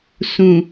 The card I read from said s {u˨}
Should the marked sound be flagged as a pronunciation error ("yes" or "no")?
yes